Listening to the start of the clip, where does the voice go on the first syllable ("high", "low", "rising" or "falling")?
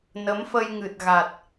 rising